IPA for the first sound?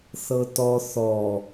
θ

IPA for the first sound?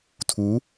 tʰ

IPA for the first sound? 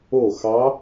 o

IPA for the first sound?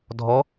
dʱ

